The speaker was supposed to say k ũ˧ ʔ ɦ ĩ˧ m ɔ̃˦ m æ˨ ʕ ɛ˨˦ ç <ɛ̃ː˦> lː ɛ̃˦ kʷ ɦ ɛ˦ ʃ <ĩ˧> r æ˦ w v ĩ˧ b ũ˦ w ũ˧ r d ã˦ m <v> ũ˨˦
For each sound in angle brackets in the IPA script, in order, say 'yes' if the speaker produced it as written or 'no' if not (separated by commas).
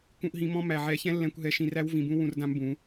no, no, no